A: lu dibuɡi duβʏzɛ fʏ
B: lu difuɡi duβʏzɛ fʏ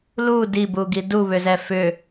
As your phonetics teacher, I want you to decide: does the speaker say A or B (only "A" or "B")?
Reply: A